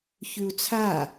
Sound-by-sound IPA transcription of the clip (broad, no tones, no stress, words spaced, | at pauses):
çʉu̯t͡sʰa